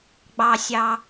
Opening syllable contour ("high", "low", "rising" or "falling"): low